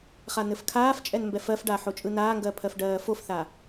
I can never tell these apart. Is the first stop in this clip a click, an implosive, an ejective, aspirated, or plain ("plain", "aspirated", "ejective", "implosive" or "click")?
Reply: aspirated